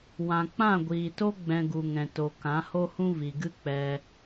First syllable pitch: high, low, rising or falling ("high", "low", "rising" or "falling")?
low